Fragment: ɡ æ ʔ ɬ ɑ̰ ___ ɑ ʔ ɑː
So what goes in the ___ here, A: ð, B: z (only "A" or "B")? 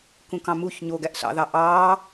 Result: A